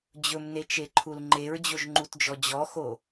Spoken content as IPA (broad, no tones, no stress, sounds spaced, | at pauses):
d͡ʑ ɵ m n e t͡ʃ e ǃʰ u l ŋ͡ǃ e ɹ d͡ʑ o ʒ ŋ͡ǃ u t d͡ʒ ɔ d͡ʑ ɔ x o